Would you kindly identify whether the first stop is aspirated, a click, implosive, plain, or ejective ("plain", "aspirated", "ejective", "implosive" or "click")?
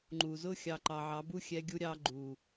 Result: click